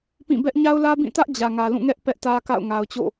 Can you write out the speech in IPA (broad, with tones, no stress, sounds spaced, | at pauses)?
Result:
p ĩ˦˨ b ɛ˦ ʔ ɲ a˦ ʊ̯ l ä˦ b ĩ˦˨ t ä˦ ʔ d͡ʑ ä˨ ŋ ä˨ l ũ˦˨ ŋ ɛ˦ ʔ p ɛ˦ ʔ t ä˦ k a̰˦˨ ʊ̯ ŋ a˨ ʊ̯ t͡ɕ o̰˦˨